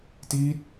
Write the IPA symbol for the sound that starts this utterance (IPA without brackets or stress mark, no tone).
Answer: t